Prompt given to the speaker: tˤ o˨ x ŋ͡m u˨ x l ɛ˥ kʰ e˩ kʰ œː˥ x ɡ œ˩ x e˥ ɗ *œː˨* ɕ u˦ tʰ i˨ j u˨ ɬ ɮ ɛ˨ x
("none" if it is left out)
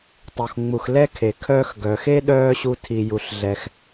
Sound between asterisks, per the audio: œː˦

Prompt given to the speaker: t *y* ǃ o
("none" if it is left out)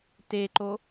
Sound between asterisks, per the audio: e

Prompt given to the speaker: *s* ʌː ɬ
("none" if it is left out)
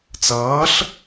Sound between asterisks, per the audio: t͡s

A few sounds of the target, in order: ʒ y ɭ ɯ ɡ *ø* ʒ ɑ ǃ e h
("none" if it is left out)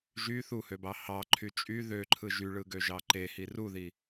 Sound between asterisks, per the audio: ø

